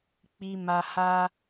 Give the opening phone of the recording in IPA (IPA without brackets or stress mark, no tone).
k͡p